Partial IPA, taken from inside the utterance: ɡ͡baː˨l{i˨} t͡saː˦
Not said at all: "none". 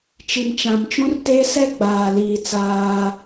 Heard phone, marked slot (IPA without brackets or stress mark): iː˨